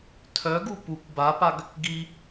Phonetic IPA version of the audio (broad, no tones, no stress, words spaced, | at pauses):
tʰœɡu pukʷ bapaɡ | ɡi